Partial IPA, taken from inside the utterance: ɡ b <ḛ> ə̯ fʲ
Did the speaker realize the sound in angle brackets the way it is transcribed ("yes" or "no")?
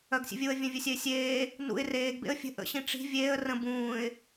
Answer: yes